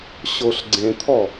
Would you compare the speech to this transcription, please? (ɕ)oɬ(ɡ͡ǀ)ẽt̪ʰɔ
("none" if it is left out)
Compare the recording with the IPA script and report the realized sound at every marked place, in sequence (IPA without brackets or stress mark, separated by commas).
ɕ, ɡ͡ǀ